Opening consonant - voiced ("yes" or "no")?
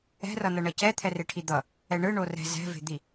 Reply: yes